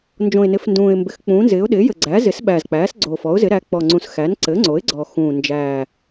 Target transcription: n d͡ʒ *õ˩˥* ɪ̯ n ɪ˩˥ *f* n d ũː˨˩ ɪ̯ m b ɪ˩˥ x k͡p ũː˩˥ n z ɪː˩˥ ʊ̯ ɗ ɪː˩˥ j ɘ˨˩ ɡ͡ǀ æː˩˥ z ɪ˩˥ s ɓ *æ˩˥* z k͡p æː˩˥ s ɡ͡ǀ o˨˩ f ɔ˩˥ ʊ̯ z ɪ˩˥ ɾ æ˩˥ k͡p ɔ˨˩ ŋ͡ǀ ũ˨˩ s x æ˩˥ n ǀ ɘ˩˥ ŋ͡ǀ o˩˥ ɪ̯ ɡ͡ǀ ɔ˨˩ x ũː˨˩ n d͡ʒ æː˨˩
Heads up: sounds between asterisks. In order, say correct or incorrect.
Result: incorrect: õ˨˩, correct, incorrect: æ˨˩

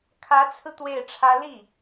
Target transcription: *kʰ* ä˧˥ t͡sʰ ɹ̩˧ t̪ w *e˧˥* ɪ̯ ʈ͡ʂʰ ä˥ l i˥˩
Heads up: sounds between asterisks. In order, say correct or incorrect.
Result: correct, incorrect: e˥˩

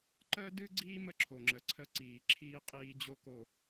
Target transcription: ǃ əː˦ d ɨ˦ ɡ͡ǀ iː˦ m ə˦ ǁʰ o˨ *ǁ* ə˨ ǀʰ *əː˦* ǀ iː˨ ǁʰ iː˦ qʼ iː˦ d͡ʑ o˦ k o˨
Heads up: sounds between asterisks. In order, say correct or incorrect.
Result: incorrect: ŋ͡ǁ, incorrect: ə˦

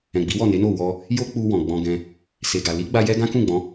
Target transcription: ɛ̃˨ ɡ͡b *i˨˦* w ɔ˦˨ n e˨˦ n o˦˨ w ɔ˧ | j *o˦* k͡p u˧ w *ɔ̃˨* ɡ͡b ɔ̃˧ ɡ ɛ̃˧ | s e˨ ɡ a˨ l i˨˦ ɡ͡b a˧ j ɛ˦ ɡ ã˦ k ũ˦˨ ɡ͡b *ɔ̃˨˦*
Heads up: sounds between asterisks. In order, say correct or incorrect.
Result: correct, correct, correct, correct

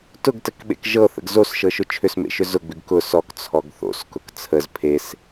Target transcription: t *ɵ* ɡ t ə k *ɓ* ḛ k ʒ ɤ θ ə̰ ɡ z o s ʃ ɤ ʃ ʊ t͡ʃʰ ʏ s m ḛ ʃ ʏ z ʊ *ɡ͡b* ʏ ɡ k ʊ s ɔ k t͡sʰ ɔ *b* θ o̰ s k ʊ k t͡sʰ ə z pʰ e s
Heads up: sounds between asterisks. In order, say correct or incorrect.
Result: incorrect: ʊ, correct, correct, incorrect: ɡ

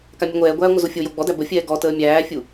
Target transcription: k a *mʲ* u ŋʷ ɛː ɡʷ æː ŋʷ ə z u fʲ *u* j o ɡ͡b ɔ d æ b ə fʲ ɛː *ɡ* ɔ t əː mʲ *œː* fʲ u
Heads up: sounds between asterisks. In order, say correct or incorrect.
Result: correct, incorrect: o, correct, incorrect: æː

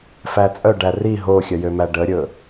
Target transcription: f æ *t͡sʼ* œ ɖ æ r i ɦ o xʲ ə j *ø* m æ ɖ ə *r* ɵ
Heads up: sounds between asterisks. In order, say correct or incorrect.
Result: correct, correct, incorrect: ɾʲ

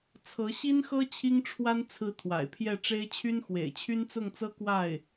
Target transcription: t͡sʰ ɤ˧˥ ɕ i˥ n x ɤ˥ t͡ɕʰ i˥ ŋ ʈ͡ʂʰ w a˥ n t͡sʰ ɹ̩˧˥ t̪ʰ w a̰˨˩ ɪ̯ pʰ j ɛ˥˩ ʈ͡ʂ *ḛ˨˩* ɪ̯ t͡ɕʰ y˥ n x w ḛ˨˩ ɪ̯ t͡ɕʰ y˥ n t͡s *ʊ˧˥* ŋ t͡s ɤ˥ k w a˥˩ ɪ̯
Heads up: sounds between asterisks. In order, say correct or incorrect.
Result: incorrect: e˥, incorrect: ʊ˥˩

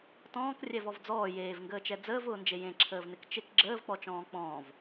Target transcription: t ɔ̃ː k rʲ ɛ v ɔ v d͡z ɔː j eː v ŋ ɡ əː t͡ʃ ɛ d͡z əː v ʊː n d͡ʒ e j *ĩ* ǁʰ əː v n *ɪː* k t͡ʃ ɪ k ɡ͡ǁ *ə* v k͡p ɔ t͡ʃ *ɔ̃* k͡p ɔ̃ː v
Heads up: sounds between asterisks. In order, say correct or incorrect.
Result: incorrect: ẽ, incorrect: ɪ, incorrect: əː, incorrect: ɔ̃ː

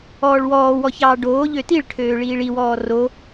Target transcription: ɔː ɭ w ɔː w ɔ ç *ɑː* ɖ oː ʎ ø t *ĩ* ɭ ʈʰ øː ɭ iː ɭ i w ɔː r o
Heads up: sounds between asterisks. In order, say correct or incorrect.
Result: correct, incorrect: i

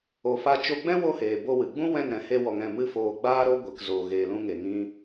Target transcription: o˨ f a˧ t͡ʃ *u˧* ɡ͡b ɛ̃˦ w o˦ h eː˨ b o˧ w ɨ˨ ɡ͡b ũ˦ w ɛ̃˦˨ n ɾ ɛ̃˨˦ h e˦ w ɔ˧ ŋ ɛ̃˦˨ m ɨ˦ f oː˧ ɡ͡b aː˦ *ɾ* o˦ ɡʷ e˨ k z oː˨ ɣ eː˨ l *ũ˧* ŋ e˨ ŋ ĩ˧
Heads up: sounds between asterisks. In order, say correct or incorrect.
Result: incorrect: o˧, correct, correct

